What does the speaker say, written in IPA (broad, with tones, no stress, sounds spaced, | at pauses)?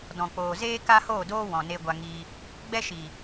d ɔ̃˨ k͡p oː˨ z eː˦ k a˦ h oː˦˨ d oː˦ w ɔ̃˨ n e˧ ɡʷ a˧ ŋ i˧ | ɡ͡b ɛ˦ ʃ i˨